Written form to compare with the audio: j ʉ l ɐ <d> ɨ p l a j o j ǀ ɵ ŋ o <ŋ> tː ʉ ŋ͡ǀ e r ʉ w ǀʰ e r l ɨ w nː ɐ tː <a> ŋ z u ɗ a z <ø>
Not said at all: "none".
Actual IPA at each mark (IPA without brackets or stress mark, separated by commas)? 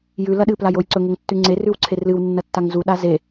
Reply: ɗ, ŋ, a, e